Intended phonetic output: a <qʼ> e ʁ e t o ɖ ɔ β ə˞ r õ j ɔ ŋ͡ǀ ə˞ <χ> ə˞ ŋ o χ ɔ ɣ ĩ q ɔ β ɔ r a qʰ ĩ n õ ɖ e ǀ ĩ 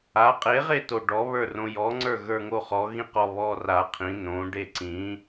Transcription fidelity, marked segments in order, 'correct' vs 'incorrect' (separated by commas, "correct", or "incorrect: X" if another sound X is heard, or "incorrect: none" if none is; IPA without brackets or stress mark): correct, incorrect: ɣ